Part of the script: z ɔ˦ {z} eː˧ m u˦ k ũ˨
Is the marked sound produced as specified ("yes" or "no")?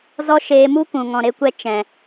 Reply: no